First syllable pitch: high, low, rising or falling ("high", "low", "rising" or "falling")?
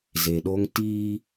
low